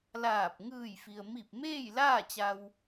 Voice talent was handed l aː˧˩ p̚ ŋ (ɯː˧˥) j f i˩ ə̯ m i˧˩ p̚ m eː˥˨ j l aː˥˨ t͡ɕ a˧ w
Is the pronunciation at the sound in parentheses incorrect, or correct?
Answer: incorrect